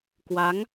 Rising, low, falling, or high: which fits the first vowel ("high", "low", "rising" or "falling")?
rising